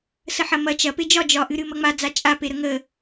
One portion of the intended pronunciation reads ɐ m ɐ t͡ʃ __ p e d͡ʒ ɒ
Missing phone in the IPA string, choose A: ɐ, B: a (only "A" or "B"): A